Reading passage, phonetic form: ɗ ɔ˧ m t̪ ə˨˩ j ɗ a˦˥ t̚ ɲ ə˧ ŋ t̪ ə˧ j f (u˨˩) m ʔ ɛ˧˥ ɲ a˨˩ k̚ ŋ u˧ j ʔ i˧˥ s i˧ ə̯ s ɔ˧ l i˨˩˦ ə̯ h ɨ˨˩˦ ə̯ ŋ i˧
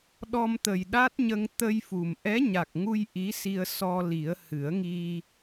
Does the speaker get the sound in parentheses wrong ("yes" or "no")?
no